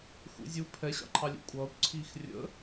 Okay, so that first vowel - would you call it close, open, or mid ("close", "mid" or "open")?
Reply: close